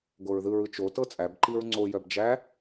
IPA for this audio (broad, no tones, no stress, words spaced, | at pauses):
ɡoɹðɯɹɯ t͡ʃotɤ t͡sʼæbǃiɹ ŋ͡ǀojœb d͡ʒæ